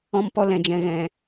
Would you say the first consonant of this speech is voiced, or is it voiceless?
voiced